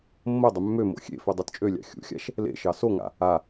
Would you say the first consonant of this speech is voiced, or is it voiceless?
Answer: voiced